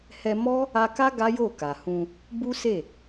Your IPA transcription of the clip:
h ɛ˧ m ɔ˦ | a˧ k a˦ ɡ a˦ j o˦˨ k a˨ h ũ˧ | b u˦ s e˦˨

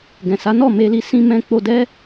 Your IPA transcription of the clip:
ɡ ɛ̃˨ s a˨˦ n ɔ˦˨ m e˧ l i˧ s ĩ˧ m ɛ̃˧ k͡p o˧ d ɛ˦

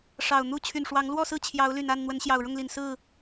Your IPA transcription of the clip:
ʂ ɑ˨˩ ʊ̯ n̪ u˥˨ t͡ɕʰ y˨˩ n ʂ w ɑ˨˦ ŋ l w ɔ˥˨ s ɹ̩˥˨ t͡ɕʰ j ɑ˨˦ ʊ̯ l y˨˩ n a˥˨ n n̪ w ə˨˦ n ɕ j ɑ˨˩ ʊ̯ ɻ ʊ˥˨ ŋ l i˨˩ n s ɹ̩˥˨

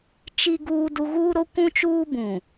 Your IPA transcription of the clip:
t͡ʃ i˦ ɡ uː˦ d u˦ ɣ uː˦ ɾ o˦ kʷ ũ˦ t͡ʃ uː˦ b ũ˨

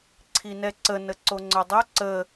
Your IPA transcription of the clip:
ǀʰ i n ɛ ǀ ə n ə ǀ o ŋ͡ǀ œ dˤ o ǀ ə

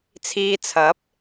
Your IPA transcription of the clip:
t͡sʰ iː˧ t͡sʰ ɐ˨˥ p̚

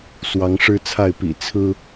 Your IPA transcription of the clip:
s w ɑ˨˦ ŋ ʂ ɻ̩˦ t͡sʰ a˥˨ ɪ̯ p ḭ˨˩ t͡sʰ ɹ̩˦

